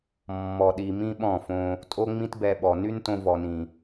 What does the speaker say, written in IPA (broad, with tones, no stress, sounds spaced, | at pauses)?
mː ɔ˧ ɗ i˧ m ĩ˦ ɓ ɔ̃˦˨ f õ˧ | tʼ o˦ ŋ͡m ĩ˦ t b ɛ˧ ɓ ɔ˨ n y˦ n t õ˧ v ɔ˨ n ĩ˨